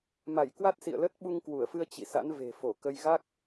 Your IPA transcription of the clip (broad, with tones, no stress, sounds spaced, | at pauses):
m a˧˩ j k w a˦˥ t̚ s ḭ˧˨ ə̯ l ə˦˥ t̚ ɓ u˧ ŋ k w u˧˩ ə̯ f ɨ˧ ə̯ t͡ɕ ḭ˧˨ s a̰˧˥ n v e̤˨˩ f o˧˩ k ə˧ j ɣ a˦˥ k̚